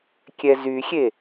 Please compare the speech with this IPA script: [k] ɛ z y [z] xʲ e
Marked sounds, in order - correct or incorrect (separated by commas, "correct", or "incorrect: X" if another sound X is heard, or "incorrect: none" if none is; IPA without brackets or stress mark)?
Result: incorrect: kʲ, incorrect: none